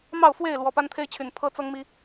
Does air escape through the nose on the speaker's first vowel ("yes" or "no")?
no